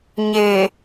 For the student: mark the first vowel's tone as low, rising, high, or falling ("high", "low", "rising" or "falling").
low